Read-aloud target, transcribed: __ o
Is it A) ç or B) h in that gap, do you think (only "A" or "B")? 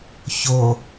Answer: A